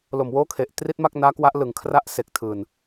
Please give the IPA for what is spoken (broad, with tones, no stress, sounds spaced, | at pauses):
l o˨˩ m w oː˦˥ kʰ e˨˩ ʔ t r i˦˥ t̚ m a˥˩ k̚ n aː˦˥ k w a˦˥ ʔ l ɯ˨˩ ŋ kʰ r a˦˥ ʔ s e˨˩ k̚ tʰ ɯː˨˩ n